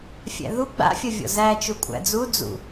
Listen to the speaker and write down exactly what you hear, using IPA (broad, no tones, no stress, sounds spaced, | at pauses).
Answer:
fʲ æ̰ ð u ɡ͡b a̰ fʲ ɐ vʲ ɔ̰ z æ t͡ʃ u kʷʼ æ̰ d͡z u d͡z ṵ